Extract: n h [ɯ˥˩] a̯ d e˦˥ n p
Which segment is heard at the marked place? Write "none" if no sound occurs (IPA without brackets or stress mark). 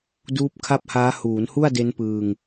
u˥˩